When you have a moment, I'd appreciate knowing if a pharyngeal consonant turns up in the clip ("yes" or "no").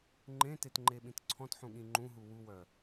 yes